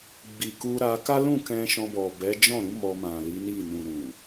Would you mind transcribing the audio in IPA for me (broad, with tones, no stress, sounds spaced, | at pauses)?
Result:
ɡ͡b i˨ k u˧ ɾ a˧ k a˦ l ũ˦˨ k ɛ̃˧ ʃ ɔ̃˧ b ɔ˨ b ɛ˨˦ d͡ʒ ɔ̃˦˨ ɾ ũ˨˦ m ɔ˧ m ã˨ l i˨˦ n i˦˨ n ũ˨ ɾ ũ˨